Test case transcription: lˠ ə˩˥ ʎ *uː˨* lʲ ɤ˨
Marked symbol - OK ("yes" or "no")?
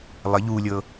yes